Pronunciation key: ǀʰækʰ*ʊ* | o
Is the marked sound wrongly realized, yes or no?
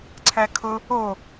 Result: no